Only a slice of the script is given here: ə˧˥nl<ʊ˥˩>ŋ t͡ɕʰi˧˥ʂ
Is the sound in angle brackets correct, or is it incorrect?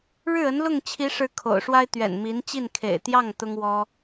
correct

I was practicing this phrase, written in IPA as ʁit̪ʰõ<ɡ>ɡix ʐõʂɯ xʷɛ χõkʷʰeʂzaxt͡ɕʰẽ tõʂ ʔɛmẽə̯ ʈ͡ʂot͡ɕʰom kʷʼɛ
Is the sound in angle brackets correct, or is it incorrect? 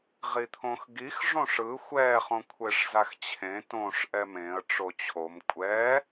incorrect: x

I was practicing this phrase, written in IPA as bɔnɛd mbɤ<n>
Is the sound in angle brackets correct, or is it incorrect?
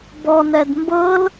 incorrect: l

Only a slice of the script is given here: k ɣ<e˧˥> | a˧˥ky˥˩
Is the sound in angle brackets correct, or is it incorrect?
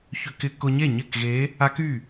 correct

